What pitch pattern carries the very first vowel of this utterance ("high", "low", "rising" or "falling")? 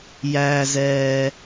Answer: low